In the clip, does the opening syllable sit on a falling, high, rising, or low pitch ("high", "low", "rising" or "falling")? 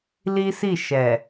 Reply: high